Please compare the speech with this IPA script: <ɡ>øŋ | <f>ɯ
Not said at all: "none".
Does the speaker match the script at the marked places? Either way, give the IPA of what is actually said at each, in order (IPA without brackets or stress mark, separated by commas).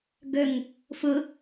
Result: ɡ, f